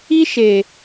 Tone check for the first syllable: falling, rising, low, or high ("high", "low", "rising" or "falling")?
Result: high